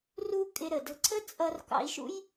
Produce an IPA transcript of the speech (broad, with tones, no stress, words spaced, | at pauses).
ru˧ kʼɪ˧ɾə˩də̤˧ ǀʰə˥t͡sʼʌ˧rkɑ̰˧i̯ʃṵ˥j